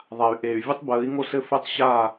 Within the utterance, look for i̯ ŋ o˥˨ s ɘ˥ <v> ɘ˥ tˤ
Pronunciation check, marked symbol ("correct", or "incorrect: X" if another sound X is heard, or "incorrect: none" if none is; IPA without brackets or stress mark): incorrect: f